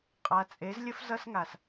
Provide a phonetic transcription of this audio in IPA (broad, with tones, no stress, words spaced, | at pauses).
qʼa˨t͡sʼe˨˦z lʲə˧f zʌ˧sŋa˨s